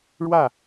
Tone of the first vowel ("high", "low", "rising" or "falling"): falling